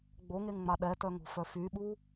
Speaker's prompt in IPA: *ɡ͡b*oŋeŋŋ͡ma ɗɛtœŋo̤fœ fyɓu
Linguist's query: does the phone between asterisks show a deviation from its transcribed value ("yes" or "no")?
no